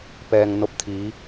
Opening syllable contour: low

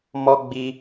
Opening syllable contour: high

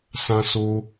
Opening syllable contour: high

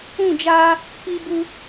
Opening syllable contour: falling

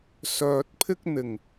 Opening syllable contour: low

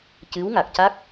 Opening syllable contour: rising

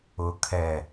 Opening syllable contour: low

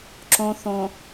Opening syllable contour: low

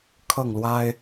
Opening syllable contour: falling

